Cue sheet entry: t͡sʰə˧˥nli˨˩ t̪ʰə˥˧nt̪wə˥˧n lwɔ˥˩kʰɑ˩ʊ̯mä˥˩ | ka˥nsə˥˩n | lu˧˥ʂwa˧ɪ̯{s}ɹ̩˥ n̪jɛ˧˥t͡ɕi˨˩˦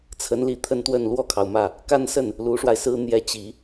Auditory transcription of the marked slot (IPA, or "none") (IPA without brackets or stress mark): s